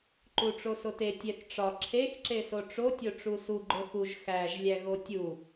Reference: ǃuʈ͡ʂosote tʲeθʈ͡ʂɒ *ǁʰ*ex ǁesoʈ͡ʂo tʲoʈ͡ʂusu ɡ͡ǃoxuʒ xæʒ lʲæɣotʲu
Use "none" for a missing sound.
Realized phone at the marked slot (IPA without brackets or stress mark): ǁʰ